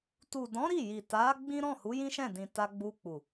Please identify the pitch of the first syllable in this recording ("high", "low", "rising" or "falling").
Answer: low